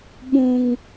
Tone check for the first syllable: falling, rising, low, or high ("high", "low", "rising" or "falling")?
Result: high